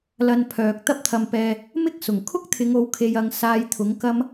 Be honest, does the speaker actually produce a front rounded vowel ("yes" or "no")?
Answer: yes